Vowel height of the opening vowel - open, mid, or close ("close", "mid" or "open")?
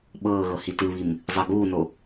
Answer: mid